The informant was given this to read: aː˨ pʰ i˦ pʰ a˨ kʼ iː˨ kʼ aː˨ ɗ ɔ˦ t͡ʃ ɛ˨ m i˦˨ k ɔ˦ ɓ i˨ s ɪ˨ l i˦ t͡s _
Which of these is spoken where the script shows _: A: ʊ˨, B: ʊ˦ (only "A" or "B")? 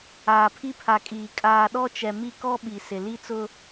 B